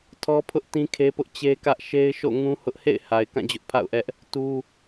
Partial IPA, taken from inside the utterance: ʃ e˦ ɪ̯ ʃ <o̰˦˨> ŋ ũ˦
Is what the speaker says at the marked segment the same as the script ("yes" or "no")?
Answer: yes